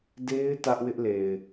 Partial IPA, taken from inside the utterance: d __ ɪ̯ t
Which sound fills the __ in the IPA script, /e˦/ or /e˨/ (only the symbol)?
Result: e˦